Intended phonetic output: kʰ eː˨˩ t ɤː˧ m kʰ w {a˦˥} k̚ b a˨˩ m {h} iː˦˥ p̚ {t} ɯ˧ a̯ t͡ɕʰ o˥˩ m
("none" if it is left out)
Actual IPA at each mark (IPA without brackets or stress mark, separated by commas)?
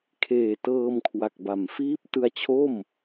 a˨˩, f, t